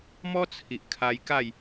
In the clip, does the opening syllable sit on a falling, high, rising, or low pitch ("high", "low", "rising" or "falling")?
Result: high